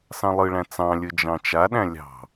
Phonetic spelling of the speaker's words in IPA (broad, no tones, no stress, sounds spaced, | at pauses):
s ɑ̃ lˠ ɯ ɭ æ̃ t͡s ɑ̃ lʲ ɯ d͡ʒ ɑ̃ t͡ʃ a ɗ æ̃ lʲ ɑ̤